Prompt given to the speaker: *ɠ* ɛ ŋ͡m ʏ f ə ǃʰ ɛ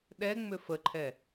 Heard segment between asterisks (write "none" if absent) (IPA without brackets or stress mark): ɗ